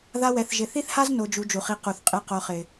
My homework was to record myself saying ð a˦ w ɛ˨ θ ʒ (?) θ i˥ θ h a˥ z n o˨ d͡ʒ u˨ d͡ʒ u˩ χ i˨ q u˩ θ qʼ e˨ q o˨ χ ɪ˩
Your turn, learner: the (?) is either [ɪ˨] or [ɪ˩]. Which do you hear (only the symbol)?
ɪ˨